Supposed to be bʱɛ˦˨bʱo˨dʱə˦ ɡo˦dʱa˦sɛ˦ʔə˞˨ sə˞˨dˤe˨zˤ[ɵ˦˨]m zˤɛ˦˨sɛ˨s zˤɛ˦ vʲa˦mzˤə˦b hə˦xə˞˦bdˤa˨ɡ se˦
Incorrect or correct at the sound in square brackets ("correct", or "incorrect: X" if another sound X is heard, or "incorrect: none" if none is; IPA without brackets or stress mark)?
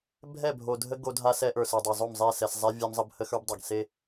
incorrect: o˦˨